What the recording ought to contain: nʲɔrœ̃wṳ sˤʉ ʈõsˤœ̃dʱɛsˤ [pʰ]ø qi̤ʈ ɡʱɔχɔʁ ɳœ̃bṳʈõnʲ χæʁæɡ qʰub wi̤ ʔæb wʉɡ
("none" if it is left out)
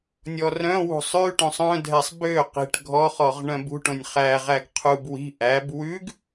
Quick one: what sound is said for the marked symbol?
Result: b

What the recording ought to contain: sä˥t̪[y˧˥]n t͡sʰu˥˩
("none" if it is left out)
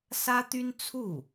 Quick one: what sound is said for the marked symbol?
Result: y˥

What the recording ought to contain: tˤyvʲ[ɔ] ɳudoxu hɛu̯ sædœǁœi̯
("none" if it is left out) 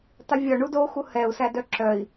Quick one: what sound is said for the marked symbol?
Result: ɔ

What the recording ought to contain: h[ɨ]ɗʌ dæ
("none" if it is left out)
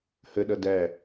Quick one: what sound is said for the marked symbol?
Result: ə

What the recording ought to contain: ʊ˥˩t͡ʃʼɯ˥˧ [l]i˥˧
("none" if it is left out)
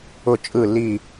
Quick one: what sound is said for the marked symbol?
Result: l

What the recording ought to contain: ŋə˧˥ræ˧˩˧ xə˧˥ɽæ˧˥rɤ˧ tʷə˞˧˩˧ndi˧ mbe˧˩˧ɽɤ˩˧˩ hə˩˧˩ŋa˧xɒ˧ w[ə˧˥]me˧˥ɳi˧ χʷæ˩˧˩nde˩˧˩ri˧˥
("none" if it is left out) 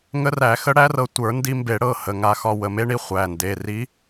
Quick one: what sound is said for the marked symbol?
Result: ə˩˧˩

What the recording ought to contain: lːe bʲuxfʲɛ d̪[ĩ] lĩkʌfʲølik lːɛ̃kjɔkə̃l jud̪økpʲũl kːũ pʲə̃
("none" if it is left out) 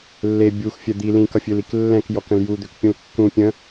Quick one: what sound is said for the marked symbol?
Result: i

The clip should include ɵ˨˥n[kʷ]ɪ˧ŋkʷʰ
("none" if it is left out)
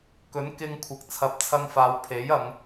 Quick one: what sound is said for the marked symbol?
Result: k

